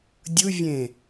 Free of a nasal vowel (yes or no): no